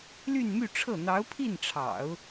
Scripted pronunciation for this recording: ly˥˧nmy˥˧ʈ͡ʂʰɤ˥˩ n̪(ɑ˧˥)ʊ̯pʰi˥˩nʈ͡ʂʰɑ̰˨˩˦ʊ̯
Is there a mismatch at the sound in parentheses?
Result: no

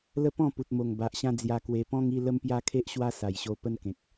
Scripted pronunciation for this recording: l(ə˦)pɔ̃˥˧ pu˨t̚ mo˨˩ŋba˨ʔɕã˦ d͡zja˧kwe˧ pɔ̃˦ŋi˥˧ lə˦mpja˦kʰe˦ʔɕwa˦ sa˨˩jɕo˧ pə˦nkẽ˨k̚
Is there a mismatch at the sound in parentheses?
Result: no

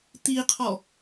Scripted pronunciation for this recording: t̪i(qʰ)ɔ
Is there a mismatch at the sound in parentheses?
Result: no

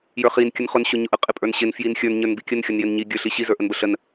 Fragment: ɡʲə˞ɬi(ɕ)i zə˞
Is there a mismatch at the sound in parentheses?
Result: no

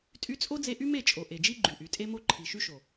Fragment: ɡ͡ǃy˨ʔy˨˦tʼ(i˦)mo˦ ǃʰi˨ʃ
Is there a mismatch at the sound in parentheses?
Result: yes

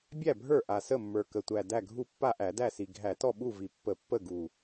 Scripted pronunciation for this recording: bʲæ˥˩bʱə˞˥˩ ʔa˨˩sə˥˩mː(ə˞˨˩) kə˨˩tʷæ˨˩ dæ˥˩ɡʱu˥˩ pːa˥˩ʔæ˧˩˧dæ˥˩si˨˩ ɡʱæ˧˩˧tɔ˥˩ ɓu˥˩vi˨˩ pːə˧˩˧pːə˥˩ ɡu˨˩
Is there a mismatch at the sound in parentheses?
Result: no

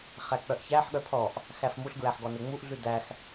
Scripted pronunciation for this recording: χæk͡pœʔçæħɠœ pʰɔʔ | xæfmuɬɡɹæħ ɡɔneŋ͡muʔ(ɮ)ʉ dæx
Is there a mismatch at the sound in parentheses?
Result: no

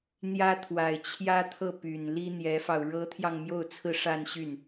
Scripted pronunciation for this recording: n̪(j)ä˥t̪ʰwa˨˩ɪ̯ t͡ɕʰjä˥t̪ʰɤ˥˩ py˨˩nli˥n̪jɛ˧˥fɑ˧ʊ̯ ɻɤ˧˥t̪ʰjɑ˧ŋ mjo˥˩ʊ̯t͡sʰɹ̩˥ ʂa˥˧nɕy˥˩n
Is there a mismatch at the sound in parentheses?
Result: no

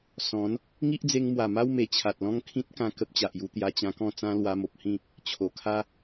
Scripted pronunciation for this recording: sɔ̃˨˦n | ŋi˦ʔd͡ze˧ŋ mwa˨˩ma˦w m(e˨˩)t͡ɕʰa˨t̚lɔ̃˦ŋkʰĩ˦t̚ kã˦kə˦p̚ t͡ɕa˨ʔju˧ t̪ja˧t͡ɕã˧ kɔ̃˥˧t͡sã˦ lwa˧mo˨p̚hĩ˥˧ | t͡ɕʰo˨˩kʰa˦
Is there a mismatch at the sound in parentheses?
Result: no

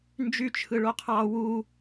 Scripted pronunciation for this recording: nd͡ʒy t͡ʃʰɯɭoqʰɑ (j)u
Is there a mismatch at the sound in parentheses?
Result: yes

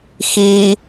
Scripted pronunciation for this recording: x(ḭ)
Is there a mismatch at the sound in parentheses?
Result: yes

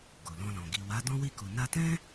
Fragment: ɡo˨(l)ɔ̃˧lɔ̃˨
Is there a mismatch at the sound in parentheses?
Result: no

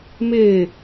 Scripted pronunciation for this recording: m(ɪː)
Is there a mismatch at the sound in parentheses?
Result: no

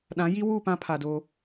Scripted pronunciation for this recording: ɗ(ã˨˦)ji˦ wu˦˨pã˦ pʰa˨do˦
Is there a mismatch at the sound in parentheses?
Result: no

